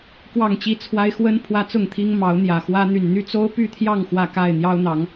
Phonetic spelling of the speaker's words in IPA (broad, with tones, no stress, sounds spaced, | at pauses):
k w ɑ˥˨ ŋ t͡ɕ i˦ t͡sʰ w a˦ ɪ̯ x w ə˦ n pʰ w ä˦ t͡s ʊ˥˨ ŋ t̪ʰ i˦ ŋ m ɑ˨˦ ʊ̯ n̪ j ä˨˩ x w ä˦ n̪ y˨˩ n n̪ y˥˨ t͡s o˦ ʊ̯ p y˥˨ t̪ʰ j ɑ˥˨ ŋ x w ä˥˨ k a˥˨ ɪ̯ n̪ j ɑ˦ ʊ̯ n̪ ɑ˨˦ ŋ